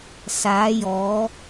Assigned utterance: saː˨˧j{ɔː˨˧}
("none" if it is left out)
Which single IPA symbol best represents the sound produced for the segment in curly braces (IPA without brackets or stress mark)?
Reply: ɔː˨˧